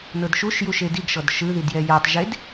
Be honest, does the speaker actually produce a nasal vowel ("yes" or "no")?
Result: no